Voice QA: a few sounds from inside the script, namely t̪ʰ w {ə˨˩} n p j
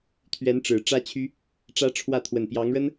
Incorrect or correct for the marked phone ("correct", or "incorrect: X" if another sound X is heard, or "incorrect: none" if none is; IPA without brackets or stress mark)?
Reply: correct